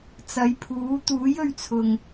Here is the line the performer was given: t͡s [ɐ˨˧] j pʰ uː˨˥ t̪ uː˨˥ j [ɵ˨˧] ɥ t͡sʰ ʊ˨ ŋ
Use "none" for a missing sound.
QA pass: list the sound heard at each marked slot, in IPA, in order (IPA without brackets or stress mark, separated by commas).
ɐ˨˧, ɵ˨˧